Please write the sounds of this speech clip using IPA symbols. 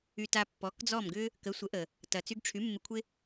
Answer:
y˧ t a˧ pː ɔ˩˥ k d͡z ɔ˥˩ m ɡ ʏ˥ | k ə˩˥ sʷ ə˩˥ ʔ ə˩ | t ɐ˩ t͡s y˧ ɡ ʈ͡ʂʰ y˩˥ mː ɪ˧ kʷʰ ɪ˥

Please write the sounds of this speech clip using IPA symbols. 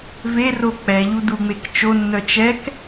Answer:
v e r o k͡p ɛ ʎ u d u ŋ͡m e k t͡ʃ o nː œ t͡ʃ ɛ k

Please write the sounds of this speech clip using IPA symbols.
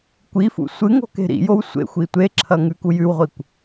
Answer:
kʷ i f ṵ sʷ ɨ ŋ o̤ k e̤ ɾ ḭ j o w sʷ ḛ xʷ i tʷ e ǁʰ ɐ ŋ ʉ k u j ʉ w ʁʷ i kʷ

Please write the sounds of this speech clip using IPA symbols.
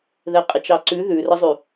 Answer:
ð ɛ qʼ ɪ t͡ʃ ɑ ǀ ʉ ð ʉ r ə zˤ ʉ

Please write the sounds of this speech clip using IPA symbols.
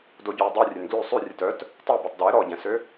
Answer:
d o ɟ œ w dˤ ʉ rʲ ø n ɡ l ʉ sˤ ʉ rʲ ɛ t œ t | tˤ o b œ tˤ d ɛ ɾ ɔ ɟ ɛ̃ s ø

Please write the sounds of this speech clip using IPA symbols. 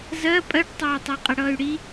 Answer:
z ɜ pʼ ɜ ʈ tˤ ʊː y̯ tˤ ɜ qʼ ɪ ɽ ʌː y̯ ɽ i

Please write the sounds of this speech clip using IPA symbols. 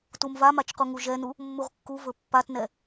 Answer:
t u m v a m a t͡ʃ q u ŋ u ʒ ɛ n u | mː u ʁ kː u v ɵ pː a t n ɛ

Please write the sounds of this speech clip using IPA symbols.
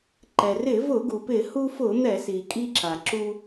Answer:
ǃ ɛ˩ r ɪ˧˩˧ v ʊ˧˩˧ ɡ u˩ p ɪ˧˩˧ h u˧ f ʊ˧˩˧ n̪ ɛ˧˩˧ s i˩ kʼ i˧ ǁ a˩ ǁ u˧

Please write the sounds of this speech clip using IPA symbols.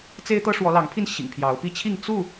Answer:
t͡s e˦ ɪ̯ t̪ ɤ˦ ʂ w ɔ˨˦ l ɑ˨˦ ŋ pʰ i˥˨ n ɕ ḭ˨˩ ŋ pʰ j ɑ˨˦ ʊ̯ p i˥˨ t͡ɕʰ i˥˨ ŋ t͡s u˥˨

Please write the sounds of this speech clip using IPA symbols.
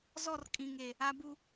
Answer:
z ɔ˦˨ r kʼ ĩ˨ ŋ e˨ | a˨ b u˨

